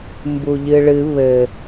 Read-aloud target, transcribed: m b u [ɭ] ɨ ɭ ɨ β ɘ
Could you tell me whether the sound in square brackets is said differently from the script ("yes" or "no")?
yes